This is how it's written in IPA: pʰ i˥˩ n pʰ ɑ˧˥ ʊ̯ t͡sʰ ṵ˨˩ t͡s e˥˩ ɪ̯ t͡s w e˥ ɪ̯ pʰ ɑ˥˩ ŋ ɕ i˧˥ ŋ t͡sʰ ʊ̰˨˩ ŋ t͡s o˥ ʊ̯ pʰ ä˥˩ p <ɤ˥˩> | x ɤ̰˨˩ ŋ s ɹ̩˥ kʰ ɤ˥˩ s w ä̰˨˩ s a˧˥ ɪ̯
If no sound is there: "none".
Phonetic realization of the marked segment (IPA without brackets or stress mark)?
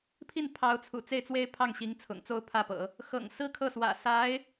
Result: ɤ̰˨˩˦